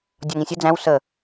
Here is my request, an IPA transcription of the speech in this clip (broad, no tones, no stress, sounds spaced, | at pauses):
dʲ ɒ ŋ ĩ sʲ ə d͡z æ̃ w s ə